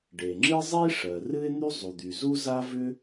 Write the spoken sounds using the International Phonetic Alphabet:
ɖ e˩ ŋ͡ǁ ɨ˥ zˤ i˥ ʂ ɜ˩ r ɨ˥ ɪ̯ n̪ y˥ zˤ u˩ d̪ y˩ z u˥ z a˥ v ʏ˥

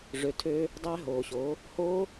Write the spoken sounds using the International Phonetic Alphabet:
ʐ ø˨ tʰ øː˧ | dˤ æ˧ ɦ oː˨ ɕ oː˨˦ | h oː˦

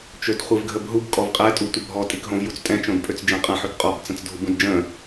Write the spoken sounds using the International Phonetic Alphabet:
t͡ʃ ø d χʷ i v ɡʱ ə b ɦ u b kʼ ɔ v qʼ ɛ tʼ u tʷ ə bʱ ɔ tʼ i k ɦ õ v j u t͡s tʼ ɛ̃ t͡ʃ õ d pʼ ø t͡s d͡ʒ ɛ̃ qʼ ə̃ ħ ø k qʼ ɔ b t͡s ə̃ t͡s dʱ u b ũ d d͡ʒ ə̃

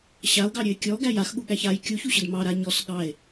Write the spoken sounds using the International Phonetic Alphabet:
ɕ a o̯ ɡ ɑ ɾʲ ø e̯ kʲ ɔ ɡ æ j a x ɠ u ɠ æ ç a j kʲ u ç u ɕ ə d m ɑ ɾ a ɲ ɔ s ɠ ɑ e̯

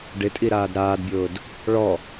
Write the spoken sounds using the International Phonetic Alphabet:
ɖ ɪ tʼ i ɾ aː d ɾ aː d bʲ ʊː d | ɭ ɔ

